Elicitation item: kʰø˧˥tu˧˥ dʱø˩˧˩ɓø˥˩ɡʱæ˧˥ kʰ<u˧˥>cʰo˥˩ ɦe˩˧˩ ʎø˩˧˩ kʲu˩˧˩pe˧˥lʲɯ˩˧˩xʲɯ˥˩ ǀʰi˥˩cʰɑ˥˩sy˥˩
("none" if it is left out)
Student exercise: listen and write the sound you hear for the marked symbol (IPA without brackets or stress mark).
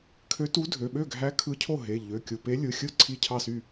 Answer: ɯ˧˥